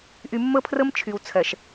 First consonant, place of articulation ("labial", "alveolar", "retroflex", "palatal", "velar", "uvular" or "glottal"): glottal